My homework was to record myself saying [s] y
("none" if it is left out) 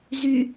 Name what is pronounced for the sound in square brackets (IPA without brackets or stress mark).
z